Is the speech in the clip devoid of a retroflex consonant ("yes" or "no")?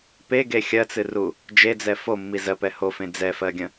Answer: yes